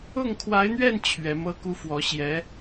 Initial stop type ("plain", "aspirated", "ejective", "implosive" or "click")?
aspirated